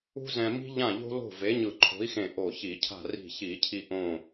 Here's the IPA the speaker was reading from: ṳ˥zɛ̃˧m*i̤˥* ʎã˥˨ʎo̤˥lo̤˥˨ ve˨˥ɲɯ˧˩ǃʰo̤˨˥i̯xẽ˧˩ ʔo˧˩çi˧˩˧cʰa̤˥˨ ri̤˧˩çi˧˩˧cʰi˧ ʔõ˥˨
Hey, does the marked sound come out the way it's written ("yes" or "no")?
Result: yes